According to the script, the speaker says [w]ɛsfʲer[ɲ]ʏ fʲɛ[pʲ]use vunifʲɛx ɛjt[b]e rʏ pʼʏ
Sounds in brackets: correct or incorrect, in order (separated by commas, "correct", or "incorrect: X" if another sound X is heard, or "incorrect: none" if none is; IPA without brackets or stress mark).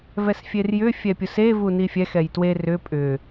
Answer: incorrect: v, incorrect: j, correct, incorrect: w